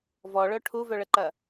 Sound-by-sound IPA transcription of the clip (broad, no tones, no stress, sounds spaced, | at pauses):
v ɔ ɭ œ ʈʰ u v œ ɭ ə ǃ ɐ